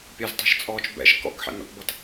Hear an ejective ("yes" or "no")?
yes